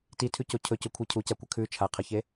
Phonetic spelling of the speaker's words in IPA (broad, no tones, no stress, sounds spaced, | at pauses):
t i tʰ ʉ c o cʰ ɵ c ɵ kʷʰ i cʰ u c a kʷ ɐ kʰ ʉ t͡ʃʰ a qʰ ɐ ç e